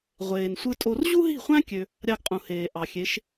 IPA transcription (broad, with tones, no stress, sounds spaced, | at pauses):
ʁʷ eː˨ n sʷ ɯ˦ tʼ o˦ r ʑ u˦ ɦ i̤˦˨ χʷ æ̃˦ kʲ ø˧ | ɾʲ ɑ˦ ɡ qʼ ũ˨ h eː˨ ʔ ɑ˨ xʲ e˨˦ ʃ